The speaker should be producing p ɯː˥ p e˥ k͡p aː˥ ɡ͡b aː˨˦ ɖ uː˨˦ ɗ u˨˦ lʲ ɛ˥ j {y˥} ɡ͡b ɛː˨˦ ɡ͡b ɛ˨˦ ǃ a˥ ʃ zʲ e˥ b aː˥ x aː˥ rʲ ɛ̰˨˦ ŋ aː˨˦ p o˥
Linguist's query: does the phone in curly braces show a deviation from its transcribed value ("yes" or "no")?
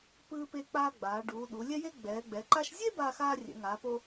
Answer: yes